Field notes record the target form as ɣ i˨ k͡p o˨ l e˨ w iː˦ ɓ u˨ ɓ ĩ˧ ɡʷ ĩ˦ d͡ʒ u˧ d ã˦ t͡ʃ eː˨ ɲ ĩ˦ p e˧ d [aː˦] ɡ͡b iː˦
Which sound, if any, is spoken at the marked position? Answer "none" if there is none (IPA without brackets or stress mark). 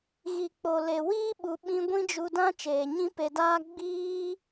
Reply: aː˦